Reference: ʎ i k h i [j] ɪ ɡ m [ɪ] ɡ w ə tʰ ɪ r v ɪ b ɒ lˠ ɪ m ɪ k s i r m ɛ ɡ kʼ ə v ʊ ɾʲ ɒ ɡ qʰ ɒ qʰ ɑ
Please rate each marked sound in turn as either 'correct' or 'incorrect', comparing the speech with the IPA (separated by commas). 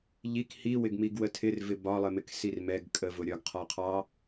incorrect, incorrect